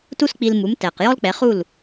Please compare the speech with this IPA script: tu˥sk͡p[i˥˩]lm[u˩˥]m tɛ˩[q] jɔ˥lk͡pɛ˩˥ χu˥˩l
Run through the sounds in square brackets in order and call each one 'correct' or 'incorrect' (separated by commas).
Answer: incorrect, correct, correct